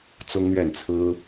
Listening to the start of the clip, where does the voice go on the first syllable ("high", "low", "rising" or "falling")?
high